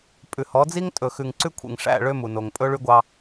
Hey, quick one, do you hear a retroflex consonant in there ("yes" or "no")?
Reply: yes